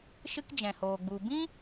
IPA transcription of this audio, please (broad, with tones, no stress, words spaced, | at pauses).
ʃɨ˦kd͡ʒɛ̃˨hoː˨ ɡ͡bu˨ bĩ˦